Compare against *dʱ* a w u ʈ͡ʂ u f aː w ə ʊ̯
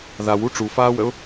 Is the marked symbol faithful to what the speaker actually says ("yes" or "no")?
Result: no